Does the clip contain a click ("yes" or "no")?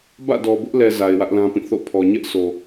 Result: no